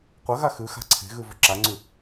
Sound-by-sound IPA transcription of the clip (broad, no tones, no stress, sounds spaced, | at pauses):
qʷ ɐ ɣ a x ʉ x a̤ ǀʰ e̤ ɣ ʉ v ʉ ǁ a ŋ͡ǀ ʉ